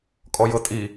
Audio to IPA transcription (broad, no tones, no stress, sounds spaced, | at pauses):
kʼ ɔ j ɤ tʼ i